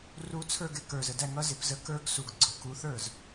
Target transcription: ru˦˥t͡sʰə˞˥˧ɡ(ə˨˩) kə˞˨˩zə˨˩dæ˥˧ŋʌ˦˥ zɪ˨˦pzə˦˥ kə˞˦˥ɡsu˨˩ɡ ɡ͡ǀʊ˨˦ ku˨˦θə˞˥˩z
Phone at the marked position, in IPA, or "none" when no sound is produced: ɪ˨˩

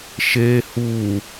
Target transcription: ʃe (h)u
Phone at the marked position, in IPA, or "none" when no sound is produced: h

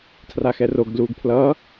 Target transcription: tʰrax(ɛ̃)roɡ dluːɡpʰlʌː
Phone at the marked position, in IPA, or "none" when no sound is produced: ɛ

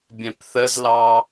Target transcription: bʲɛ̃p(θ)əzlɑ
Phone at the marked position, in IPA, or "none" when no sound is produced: θ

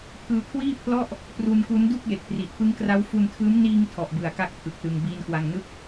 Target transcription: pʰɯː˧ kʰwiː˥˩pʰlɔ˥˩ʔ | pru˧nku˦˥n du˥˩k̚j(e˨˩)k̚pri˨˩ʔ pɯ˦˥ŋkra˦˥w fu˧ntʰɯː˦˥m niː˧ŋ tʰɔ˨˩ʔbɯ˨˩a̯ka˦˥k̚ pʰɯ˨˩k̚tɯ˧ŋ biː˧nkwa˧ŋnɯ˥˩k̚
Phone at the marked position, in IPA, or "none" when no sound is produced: e˨˩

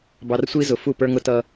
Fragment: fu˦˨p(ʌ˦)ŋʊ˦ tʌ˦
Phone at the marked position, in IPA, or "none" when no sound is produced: ə˞˦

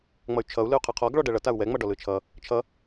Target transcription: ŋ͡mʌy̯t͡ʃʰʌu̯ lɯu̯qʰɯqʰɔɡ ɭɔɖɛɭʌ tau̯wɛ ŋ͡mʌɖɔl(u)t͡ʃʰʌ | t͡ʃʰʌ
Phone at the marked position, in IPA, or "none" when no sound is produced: ɯ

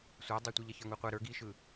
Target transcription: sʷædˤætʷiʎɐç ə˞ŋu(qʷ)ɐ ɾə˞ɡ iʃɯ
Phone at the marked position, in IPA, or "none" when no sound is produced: qʷ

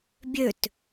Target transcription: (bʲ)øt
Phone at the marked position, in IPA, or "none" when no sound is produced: bʲ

